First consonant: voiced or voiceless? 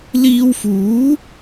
voiced